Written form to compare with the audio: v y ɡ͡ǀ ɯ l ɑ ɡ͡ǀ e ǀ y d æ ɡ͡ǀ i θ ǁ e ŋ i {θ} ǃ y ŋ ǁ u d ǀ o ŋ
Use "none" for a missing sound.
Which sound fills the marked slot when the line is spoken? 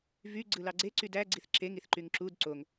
θ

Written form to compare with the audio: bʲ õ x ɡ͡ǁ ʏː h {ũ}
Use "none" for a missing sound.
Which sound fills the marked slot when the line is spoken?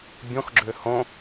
õ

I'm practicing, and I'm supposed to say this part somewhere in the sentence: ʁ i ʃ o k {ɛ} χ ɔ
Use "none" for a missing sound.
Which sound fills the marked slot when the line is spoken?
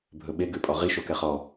ɛ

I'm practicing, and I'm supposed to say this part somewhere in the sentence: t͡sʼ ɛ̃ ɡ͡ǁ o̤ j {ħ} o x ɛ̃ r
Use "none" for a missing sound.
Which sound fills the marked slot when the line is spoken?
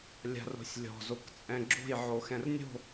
ʕ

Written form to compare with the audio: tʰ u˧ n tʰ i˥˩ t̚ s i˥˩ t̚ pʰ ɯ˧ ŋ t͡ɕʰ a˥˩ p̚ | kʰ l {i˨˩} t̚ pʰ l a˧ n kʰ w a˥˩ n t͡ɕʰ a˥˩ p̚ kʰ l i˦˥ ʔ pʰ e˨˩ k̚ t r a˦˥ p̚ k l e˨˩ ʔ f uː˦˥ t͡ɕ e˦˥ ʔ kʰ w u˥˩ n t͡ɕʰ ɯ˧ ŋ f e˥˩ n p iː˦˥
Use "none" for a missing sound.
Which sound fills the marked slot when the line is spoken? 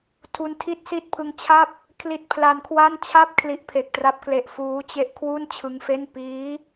i˦˥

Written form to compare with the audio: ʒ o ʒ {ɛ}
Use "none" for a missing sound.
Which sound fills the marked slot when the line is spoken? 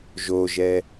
ɛ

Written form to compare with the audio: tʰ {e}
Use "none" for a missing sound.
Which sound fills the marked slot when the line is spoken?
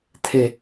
e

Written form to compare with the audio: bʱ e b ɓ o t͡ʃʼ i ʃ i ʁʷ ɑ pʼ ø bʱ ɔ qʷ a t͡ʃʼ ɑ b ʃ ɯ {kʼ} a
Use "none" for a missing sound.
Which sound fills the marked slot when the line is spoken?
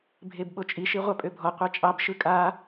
kʼ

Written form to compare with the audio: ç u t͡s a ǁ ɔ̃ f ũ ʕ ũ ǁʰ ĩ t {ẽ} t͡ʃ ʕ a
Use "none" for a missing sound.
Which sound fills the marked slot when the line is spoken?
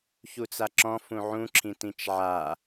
ĩ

